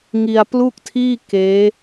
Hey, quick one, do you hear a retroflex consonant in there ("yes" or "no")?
no